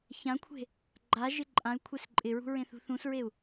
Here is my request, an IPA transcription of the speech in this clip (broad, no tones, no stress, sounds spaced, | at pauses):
ç ã kʷʰ e̤ | ɡ͡ǃ a ʒ ɪ ǃʼ ã y̯ kʷʰ e s ǃʼ ɪ ɹ ṳ ɹ ẽ θ ṳ θ ũ s ɹ e u̯